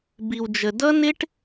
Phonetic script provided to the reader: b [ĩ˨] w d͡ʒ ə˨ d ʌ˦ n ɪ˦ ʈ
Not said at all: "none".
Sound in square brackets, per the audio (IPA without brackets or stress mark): i˨